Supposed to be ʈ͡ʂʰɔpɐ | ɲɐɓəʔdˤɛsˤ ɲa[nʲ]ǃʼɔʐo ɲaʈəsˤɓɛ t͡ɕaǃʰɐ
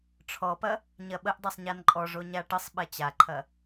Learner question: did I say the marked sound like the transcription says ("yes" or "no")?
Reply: no